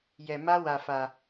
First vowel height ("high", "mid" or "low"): mid